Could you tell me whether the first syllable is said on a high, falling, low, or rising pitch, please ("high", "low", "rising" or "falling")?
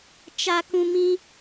high